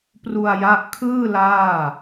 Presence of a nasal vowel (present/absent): absent